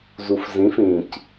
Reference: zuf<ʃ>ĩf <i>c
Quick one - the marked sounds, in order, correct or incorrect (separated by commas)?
incorrect, incorrect